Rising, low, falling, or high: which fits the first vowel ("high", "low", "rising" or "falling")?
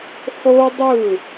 high